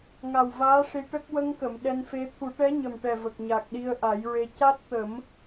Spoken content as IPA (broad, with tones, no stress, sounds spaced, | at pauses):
ŋ a˨˩ w v aː˧˥ ʂ i˧ ʈ ə˦˥ k̚ w ə˧ ŋ k ə˨˩˨ m ɗ ɛ˧ n f e˧˥ t̪ʰ u˨˩˦ ʈ ɛ˧˥ ɲ ə˨˩ m ʈ ɛ˨˩ v ə˨˩ k̚ ɲ a˨˩ k̚ ɗ i˧ ə̯ ʔ a˨˩˦ j ɹ e˧ c a˦˥ t̚ t̪ ə˨˩˦ m